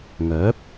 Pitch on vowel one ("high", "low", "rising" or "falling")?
rising